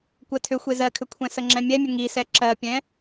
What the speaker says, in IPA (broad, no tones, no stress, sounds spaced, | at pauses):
kʷ ɜ tʰ ʏ xʷ e z ɜ kʰ ʏ kʷʰ ɛ̃ s ə ŋ͡ǁ ɛ̃ mʲ ɛ mʲ ə ŋ i s ɛ ǁ ɜ pʲ ɛ̃